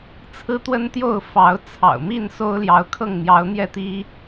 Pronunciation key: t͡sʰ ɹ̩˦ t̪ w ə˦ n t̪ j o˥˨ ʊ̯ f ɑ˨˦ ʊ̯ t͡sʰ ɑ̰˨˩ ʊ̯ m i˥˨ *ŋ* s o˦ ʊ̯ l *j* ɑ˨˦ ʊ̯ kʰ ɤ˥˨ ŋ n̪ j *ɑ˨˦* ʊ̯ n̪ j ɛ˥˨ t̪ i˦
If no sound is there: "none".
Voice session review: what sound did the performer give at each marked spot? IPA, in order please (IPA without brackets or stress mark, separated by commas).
n, j, ɑ˨˦